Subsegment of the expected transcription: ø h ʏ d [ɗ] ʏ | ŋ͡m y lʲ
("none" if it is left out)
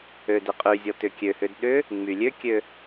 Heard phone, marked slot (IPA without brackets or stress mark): ɗ